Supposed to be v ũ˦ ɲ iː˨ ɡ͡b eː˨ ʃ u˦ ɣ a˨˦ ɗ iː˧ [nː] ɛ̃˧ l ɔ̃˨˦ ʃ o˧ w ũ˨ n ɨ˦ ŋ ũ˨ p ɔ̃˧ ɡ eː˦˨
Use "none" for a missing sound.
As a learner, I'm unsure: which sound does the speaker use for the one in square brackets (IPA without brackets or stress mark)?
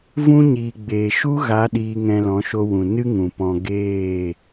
ŋ